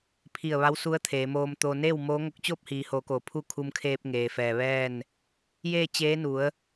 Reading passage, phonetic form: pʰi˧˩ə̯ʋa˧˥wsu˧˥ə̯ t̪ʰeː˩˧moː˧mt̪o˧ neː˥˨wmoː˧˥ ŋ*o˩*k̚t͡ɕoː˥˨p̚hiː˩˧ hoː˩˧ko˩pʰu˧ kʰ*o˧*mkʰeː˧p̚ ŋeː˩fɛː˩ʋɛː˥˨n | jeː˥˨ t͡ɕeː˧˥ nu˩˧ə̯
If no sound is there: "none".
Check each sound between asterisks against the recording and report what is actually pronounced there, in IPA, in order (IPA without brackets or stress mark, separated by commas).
o˧, u˧